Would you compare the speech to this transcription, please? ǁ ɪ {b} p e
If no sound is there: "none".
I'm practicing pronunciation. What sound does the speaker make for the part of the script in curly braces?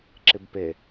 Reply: b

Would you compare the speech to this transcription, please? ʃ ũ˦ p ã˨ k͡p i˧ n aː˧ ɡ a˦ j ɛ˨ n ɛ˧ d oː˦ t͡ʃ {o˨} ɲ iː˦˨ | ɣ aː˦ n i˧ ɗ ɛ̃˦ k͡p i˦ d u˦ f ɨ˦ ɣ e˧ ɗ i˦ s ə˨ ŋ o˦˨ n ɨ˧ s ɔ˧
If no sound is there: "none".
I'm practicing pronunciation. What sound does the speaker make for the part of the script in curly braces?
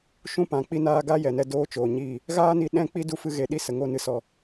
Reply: oː˨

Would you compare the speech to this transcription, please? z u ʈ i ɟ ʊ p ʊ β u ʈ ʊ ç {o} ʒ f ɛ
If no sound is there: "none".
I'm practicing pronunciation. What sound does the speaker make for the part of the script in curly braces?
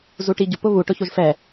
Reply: o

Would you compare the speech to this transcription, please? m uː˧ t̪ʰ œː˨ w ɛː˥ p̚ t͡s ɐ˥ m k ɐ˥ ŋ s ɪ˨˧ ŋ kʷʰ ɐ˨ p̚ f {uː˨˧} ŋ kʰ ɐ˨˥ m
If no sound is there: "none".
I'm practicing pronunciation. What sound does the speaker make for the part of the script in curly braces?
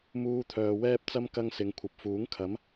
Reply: uː˨˥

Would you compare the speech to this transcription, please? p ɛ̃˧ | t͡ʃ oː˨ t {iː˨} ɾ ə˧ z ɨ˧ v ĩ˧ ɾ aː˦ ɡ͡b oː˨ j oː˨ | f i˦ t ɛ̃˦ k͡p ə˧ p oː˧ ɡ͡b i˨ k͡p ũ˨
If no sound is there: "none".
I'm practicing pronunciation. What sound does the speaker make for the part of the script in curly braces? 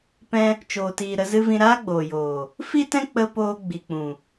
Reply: iː˨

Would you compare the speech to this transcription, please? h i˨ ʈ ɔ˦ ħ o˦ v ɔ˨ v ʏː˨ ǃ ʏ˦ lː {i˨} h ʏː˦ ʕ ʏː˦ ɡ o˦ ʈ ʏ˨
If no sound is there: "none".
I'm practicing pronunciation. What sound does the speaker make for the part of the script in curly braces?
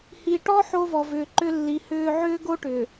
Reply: i˨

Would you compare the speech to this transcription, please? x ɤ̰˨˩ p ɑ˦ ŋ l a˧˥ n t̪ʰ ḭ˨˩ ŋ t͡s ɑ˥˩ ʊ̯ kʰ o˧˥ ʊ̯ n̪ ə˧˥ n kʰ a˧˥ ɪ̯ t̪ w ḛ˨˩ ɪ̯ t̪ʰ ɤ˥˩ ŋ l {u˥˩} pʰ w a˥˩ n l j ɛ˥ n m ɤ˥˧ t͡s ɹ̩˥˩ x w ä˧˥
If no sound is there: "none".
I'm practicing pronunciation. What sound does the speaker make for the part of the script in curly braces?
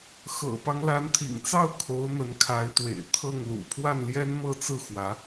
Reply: ṵ˨˩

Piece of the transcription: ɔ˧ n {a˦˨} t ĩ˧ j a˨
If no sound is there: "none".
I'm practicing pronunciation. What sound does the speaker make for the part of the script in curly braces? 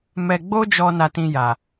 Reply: a˧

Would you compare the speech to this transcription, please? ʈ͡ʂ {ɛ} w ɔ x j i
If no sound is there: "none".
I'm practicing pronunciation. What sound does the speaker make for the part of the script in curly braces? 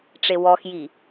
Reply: e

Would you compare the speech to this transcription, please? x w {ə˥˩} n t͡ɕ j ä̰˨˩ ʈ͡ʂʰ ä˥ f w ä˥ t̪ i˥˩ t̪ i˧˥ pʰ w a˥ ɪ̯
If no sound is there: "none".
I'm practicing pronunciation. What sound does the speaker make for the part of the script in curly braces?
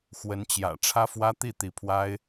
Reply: ə˧˥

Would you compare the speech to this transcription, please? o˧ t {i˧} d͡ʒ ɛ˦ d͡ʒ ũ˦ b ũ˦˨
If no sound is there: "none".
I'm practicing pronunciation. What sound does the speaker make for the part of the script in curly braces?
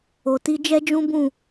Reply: i˦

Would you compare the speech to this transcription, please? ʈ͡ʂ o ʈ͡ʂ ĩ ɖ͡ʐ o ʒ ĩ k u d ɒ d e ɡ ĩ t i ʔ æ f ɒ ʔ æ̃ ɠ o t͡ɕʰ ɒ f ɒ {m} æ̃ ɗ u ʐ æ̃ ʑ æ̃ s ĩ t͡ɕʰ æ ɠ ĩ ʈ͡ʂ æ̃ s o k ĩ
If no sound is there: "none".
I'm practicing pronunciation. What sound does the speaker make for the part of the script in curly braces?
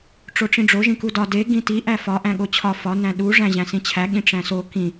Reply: n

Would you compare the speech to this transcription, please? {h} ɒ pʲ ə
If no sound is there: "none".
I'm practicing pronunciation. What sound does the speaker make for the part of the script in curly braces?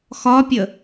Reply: x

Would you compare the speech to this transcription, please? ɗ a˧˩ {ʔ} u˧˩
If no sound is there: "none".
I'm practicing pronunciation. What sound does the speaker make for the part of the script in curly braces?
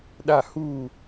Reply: h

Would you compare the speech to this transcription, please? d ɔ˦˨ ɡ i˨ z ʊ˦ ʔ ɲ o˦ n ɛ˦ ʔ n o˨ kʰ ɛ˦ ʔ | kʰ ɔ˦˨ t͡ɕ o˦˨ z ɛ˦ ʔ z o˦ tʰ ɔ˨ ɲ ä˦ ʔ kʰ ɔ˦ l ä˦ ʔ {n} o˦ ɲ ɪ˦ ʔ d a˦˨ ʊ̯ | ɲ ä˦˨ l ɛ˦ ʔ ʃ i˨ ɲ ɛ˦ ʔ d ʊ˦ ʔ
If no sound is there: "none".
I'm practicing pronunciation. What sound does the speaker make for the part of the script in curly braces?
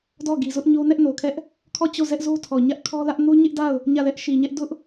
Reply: n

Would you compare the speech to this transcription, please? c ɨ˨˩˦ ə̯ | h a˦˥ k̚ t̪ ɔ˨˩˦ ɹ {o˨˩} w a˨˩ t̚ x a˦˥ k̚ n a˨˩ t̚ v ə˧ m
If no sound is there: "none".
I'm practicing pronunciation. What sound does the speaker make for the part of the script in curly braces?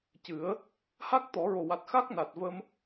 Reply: o˨˩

